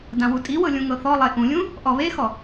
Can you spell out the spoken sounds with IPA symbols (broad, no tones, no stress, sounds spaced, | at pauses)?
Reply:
d ã w u tʼ i w ɤ lʲ ũ ŋ ɤ θ ɔ lˠ e ʔ ũ lʲ ũ | ʔ ɔ β e x ɔ